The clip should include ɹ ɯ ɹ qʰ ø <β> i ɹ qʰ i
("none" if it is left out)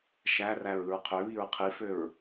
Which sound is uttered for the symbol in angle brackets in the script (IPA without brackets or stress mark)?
β